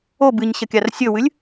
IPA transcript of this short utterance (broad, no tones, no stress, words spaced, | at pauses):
o bɨɲɕɐ kʲarsʲɵwɨlʲ